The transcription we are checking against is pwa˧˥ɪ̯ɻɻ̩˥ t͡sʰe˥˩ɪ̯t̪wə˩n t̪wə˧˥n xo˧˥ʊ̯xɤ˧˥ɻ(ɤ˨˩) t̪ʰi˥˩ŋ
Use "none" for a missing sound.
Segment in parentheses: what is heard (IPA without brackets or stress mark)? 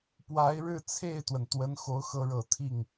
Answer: ɤ˨˩